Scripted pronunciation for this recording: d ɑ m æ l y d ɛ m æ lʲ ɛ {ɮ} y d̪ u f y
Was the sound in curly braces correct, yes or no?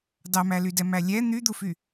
no